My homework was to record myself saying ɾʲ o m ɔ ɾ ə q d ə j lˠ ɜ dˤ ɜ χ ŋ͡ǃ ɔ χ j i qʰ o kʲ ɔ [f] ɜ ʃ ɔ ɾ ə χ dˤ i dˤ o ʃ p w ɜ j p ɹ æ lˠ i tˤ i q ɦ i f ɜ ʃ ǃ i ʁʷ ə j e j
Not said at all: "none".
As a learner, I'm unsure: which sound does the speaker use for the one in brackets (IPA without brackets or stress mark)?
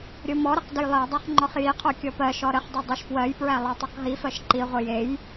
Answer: p